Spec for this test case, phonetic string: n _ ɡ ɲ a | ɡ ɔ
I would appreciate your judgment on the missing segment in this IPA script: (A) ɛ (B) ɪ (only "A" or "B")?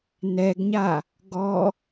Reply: A